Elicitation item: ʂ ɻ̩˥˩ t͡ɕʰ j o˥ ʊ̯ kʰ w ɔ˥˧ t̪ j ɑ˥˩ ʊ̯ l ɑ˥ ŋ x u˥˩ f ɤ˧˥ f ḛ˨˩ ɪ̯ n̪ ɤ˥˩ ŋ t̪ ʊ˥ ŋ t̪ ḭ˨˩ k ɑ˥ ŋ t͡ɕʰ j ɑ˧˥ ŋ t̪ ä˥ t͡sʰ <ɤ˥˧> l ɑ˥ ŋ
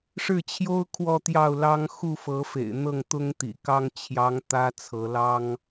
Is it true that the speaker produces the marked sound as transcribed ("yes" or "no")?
no